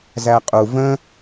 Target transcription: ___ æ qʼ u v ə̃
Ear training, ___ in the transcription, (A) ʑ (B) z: B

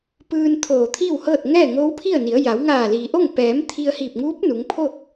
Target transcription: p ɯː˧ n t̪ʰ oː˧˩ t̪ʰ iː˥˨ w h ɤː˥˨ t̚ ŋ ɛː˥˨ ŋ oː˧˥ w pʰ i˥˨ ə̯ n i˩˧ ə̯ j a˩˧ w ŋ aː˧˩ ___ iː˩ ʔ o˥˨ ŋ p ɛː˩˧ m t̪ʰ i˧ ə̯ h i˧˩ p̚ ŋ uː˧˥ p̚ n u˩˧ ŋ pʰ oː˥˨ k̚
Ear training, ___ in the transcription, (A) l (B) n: A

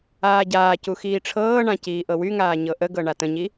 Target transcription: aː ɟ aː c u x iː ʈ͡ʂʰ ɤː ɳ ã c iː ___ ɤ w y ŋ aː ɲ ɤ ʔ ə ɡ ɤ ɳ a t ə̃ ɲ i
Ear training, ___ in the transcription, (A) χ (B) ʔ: B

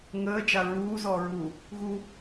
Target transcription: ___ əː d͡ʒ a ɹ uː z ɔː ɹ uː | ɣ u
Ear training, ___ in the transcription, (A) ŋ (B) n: A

